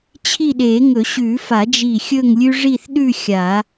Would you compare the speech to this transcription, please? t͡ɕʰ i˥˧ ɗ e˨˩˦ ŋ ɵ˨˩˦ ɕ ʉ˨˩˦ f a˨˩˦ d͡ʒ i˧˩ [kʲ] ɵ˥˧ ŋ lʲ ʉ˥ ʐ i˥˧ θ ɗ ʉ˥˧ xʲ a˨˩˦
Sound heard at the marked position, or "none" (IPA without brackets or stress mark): xʲ